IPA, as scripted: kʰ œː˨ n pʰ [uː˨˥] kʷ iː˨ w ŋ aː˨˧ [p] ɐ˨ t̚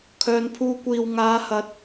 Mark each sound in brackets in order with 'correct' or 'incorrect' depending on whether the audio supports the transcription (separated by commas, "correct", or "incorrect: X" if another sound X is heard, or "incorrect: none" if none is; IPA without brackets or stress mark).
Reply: incorrect: uː˧, incorrect: h